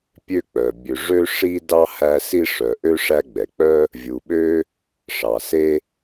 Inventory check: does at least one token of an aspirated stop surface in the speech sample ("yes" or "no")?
no